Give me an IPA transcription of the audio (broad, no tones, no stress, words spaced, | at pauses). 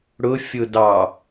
ɽʊ fʲʊdɑ